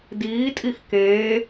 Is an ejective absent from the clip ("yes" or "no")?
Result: no